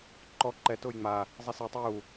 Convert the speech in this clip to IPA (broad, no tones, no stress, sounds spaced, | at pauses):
ǃ ɔ ǃ ɛ t ʊː j ŋ͡m a | zˤ i s i tˤ ɛ j u